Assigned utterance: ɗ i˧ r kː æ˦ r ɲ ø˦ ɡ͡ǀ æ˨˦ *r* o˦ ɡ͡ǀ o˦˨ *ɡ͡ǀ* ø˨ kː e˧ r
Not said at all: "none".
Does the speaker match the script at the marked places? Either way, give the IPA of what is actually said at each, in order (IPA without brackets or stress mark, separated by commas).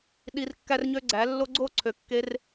lː, ǀʰ